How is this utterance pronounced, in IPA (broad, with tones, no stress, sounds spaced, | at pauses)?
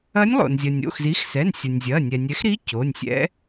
ɐ˧˥ nʲ lˠ o̰˩ n zʲ ɐ˩ nʲ o̰˩˧˩ x z i˩˥ x s ɛ˩˧˩ n sʲ ɐ˩ nʲ zʲ ɐ˩˧˩ nʲ ɛ˩ nʲ ɛ˩˥ x ɾ i˧˥ c o˩˧˩ nʲ sʲ ɛ̰˧˥